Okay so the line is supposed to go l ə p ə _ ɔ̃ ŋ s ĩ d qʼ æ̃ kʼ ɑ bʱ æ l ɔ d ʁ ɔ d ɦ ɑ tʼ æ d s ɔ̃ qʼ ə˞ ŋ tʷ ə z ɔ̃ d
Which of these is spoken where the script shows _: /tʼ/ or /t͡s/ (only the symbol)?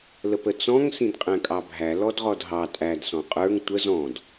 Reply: t͡s